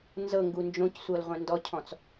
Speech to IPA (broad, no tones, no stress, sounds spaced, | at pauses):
n z ɤ ŋ ɡ u n d͡ʒ õ c sʷ ɤ l ʁʷ ɛ̃ n d ɔ cʰ ɔ̃ t͡s